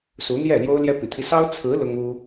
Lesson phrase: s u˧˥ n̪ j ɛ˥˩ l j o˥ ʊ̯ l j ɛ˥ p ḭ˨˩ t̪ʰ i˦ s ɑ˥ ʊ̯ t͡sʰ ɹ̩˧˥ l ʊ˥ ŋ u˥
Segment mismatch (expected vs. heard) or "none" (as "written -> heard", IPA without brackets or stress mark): none